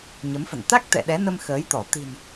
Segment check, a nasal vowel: absent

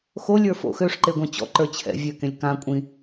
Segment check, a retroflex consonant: present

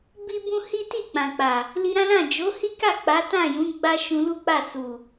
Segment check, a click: absent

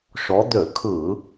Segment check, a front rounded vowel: present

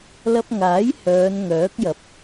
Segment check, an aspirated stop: absent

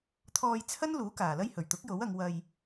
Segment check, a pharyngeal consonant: absent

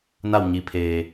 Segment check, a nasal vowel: absent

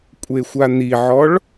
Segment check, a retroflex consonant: present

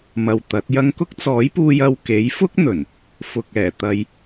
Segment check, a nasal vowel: absent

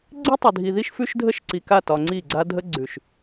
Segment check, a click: present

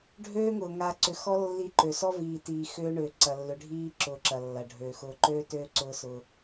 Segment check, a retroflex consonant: present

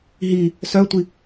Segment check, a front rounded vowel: present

